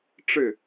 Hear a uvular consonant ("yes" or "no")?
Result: no